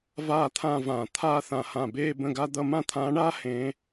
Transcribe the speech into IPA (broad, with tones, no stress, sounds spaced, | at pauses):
v aː˥˧ t̪ʰ ã˥˧ v ãː˧˩ t̪ʰ aː˥˧ θ ã˧˩ h ã˧˩ b eː˥˧ b ə̃˥˧ ɡ a˥ d̪ ʌ˥˧ m ã˥˧ t̪ʰ ãː˧˥ ɳ aː˥ h ẽ˧˥